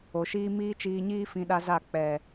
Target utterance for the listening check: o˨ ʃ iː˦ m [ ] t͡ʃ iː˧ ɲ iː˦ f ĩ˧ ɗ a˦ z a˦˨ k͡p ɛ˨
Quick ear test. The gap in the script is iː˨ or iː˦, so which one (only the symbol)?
iː˦